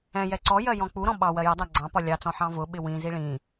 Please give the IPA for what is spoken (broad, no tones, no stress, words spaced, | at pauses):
ɛ̃ jɛǀɔjɜ jɔ̃k͡puɾɔ̃ ɓɑ wɜjʌdˤæ ɡ͡ǀɑ̃pɒ lʲɑt͡sɔ̃ ħɑ̃vʊɓɪ wĩzi ɭĩ